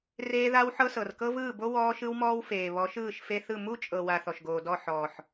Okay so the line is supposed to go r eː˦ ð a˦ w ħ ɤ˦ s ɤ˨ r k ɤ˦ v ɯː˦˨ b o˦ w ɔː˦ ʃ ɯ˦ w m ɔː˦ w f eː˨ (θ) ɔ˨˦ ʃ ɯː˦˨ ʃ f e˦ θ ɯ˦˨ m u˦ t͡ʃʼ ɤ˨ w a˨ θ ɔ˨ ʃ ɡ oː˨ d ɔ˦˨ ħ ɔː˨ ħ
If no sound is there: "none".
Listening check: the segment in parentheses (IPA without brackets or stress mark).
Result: β